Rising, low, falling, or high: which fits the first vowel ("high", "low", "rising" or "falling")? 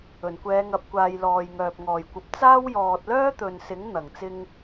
low